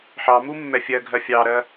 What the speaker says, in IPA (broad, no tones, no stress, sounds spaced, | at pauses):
ħ ɑ m u mː ɛ fʲ ɜ ɡʱ ɜ fʲ ɑ ɾ ɜ